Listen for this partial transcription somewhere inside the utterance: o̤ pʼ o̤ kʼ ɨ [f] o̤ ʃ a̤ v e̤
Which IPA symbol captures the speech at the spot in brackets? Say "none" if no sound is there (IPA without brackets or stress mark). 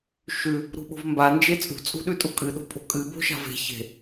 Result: b